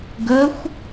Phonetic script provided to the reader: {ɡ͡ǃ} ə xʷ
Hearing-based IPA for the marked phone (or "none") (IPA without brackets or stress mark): ɡ